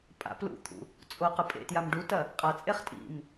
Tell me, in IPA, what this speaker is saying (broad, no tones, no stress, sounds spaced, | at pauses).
pʼ a̰ p l ṵ t̪ʰ ṵ | t͡sʼ o q ɨ pʼ ḛ t j a m ɖ u t ɐ | qʼ a t͡sʼ e χ tʼ ḭ m